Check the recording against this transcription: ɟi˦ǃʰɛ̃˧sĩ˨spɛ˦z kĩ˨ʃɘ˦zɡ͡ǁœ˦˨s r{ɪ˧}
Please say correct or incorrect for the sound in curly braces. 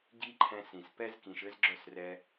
incorrect